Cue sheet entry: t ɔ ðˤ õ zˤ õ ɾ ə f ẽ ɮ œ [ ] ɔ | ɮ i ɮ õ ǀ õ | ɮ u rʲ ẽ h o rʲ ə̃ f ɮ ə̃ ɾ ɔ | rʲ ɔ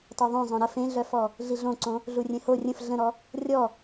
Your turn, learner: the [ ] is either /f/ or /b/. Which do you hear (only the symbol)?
f